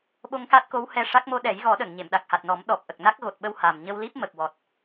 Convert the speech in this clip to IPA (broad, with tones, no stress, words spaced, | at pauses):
ɓo˧ŋka˦˥t̚ko˧˥w hɛ˧ʂa˦˥k̚ mo˧ɗɛ˨˩˦jɣɔ˨˩˦ɗə˨˩˨ŋ ɲe˨˩˨mɗa˨˩k̚ha˨˩t̚nɔ˨˩˦m ɗɔ˨˩p̚ʔə˨˩k̚ na˦˥k̚ɣo˨˩t̚ɓə˧w ha˨˩m ɲə˧wli˦˥p̚ mə˨˩k̚wɔ˨˩t̚